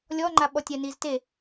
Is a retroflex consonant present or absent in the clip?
absent